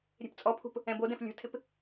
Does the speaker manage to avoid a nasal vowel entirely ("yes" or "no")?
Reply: no